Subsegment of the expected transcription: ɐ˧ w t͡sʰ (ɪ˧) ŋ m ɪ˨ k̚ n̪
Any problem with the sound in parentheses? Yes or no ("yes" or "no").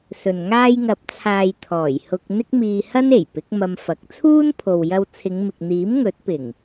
yes